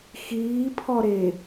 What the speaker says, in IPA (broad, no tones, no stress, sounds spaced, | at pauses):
x iː pʰ ɔ ɾ e